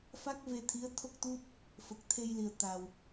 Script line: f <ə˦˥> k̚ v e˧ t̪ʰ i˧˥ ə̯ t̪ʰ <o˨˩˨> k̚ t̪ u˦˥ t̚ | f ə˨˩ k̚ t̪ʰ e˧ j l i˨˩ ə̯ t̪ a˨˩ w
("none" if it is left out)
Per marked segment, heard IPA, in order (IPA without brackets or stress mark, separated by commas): a˦˥, o˦˥